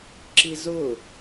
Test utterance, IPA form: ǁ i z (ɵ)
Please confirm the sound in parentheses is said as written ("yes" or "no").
no